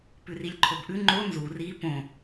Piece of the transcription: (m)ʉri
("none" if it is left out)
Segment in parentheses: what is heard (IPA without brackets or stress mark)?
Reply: p